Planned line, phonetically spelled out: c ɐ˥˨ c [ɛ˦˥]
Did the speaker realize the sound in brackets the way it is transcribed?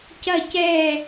no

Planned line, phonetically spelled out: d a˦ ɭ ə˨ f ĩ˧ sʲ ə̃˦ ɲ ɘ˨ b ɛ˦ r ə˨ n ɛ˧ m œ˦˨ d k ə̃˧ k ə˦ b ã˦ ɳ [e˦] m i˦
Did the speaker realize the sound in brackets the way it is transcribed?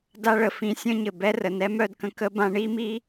no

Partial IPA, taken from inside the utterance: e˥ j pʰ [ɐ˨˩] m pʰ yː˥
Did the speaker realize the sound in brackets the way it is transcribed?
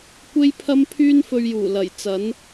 no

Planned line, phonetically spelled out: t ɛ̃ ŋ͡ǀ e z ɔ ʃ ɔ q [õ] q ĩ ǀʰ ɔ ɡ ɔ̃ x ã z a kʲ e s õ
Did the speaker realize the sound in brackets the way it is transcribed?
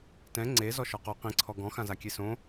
no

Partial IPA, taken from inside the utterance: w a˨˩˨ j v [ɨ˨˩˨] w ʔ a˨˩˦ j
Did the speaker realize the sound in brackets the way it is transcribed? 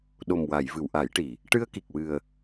yes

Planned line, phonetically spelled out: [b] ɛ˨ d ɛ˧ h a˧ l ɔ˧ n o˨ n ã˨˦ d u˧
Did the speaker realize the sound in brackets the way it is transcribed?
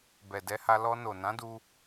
yes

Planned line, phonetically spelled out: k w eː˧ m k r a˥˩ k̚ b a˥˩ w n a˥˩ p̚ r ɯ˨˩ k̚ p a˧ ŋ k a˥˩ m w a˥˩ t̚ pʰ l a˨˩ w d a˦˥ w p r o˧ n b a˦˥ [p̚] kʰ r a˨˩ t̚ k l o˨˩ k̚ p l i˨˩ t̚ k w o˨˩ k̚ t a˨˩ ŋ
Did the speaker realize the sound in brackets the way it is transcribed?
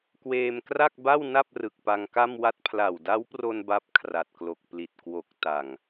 yes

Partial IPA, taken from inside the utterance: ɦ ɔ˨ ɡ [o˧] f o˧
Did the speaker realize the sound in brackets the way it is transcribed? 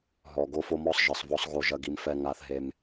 yes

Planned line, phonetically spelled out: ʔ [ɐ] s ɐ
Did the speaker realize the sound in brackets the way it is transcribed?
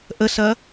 no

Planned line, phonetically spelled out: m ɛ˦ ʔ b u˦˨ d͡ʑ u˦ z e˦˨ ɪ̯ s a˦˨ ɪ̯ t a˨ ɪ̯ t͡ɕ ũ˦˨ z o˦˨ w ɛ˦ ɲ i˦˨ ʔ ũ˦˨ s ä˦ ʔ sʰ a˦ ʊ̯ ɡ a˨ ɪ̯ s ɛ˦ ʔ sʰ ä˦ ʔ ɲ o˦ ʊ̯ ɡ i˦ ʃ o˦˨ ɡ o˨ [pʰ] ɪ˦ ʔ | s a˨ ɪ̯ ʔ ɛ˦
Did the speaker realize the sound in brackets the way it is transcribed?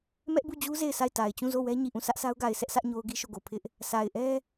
yes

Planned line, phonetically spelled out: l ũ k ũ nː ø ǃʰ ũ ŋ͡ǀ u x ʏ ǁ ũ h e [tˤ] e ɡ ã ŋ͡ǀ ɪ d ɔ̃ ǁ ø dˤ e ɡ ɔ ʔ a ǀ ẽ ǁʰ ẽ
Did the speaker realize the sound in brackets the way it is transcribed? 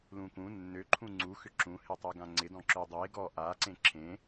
yes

